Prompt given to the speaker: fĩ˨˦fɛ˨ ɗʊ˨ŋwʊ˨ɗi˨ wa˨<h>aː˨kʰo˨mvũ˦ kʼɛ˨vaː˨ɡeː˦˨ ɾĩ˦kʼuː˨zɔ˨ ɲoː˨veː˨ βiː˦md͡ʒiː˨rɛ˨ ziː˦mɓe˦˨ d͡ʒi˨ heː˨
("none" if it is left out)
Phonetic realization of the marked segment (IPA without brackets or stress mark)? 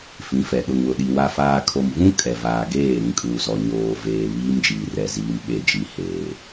f